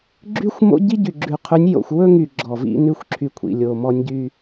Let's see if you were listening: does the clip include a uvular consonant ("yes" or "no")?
yes